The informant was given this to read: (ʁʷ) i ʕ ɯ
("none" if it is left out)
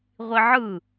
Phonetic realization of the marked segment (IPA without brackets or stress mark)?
ʁʷ